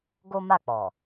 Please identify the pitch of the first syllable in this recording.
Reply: high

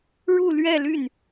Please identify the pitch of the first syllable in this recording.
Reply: falling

